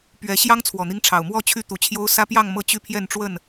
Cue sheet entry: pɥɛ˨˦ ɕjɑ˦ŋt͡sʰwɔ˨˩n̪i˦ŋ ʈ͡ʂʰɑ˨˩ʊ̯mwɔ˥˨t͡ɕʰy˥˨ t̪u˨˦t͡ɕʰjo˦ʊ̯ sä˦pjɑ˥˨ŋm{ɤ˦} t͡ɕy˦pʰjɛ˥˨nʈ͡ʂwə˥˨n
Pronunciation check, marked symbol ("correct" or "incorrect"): incorrect